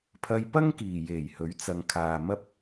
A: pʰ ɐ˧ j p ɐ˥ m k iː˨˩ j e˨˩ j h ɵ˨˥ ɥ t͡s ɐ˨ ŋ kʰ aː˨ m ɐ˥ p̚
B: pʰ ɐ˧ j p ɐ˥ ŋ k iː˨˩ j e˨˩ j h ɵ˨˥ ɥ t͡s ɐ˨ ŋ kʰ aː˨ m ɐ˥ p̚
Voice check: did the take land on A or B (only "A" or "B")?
B